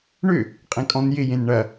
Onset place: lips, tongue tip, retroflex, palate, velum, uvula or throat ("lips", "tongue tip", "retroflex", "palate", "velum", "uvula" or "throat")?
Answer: retroflex